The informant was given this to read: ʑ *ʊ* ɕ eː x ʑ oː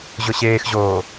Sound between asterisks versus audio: correct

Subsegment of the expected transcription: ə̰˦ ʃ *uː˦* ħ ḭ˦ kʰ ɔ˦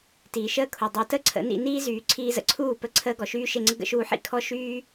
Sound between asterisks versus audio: incorrect: uː˧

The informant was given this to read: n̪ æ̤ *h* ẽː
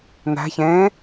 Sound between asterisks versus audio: incorrect: ç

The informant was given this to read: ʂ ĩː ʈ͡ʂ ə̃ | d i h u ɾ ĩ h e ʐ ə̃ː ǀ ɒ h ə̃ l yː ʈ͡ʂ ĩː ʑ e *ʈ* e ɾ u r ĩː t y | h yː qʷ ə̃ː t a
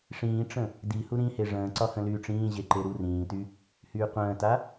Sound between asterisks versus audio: incorrect: ǃ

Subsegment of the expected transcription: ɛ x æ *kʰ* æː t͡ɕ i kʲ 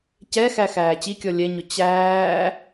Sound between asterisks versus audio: incorrect: x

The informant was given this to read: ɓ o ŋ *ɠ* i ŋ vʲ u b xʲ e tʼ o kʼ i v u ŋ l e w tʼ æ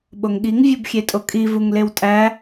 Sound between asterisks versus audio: correct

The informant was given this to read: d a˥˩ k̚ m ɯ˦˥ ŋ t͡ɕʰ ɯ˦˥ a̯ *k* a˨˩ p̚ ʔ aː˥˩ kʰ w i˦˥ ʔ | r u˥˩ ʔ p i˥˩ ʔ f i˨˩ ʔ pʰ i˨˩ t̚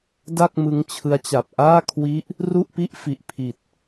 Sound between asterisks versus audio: incorrect: t͡ɕ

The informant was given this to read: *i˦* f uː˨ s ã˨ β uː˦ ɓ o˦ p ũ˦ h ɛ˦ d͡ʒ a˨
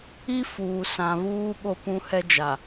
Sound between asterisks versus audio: correct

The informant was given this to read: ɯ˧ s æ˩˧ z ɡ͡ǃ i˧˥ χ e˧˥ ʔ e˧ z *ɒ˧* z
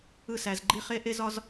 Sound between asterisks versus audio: correct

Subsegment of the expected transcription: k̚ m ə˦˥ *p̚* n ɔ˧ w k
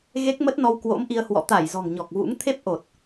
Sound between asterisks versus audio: incorrect: t̚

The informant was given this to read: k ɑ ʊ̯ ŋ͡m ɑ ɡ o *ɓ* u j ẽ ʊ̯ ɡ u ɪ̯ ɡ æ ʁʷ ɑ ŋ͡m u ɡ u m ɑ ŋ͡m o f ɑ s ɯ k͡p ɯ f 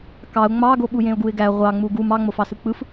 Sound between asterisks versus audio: correct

